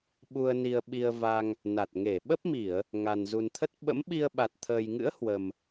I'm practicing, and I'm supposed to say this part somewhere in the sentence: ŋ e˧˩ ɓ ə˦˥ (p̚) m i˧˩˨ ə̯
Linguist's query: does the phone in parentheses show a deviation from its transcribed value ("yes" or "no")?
no